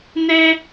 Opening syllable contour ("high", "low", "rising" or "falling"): high